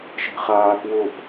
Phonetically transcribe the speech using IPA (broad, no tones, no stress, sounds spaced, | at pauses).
ʃ e̤ χ aː k w ʊː p